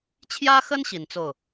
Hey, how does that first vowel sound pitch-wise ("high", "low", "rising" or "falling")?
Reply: high